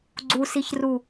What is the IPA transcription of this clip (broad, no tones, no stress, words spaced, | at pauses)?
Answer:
ɡ͡ǀusiçru